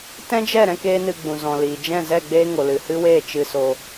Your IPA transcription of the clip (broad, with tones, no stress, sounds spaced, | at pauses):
t ɛ̃˦ d͡ʒ ɛ˦˨ ɾ ɛ̃˦ k eː˦ n ɨ˧ ɡ͡b ũ˨ z ɔ̃˨ l iː˨ d͡ʒ ɛ̃˦˨ z ɛ˦˨ ɡ͡b eː˦ ŋ o˨ l ɨ˨ h ɨ˦ w eː˦˨ t͡ʃ ɨ˧ s o˧